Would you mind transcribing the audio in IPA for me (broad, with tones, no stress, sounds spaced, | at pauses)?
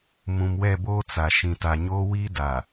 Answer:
m ũ˨ m w ɛ˦˨ b oː˦ t͡s a˨ ʃ ĩ˨ t a˨ ɲ oː˦ w iː˦ d a˨